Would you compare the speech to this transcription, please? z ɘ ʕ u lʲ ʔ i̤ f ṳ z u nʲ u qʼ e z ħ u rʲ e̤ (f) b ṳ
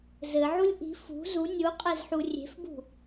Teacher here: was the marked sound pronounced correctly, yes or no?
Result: yes